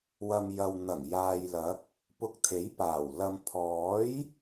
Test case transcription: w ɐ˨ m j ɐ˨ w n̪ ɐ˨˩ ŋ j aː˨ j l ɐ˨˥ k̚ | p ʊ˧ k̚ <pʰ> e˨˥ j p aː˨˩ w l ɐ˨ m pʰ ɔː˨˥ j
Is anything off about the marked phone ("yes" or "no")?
yes